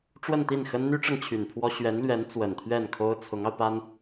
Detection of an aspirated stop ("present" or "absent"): present